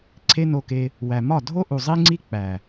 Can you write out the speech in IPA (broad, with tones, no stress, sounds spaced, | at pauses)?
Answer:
ǀʰ e˦ n o˧ k e˧ | w æ˨ m ɒ˦˨ dʱ o˦ ʔ u˨ zˤ i˦ ŋ͡ǀ i˦ k͡p æ˨